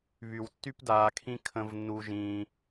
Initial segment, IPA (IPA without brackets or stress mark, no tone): β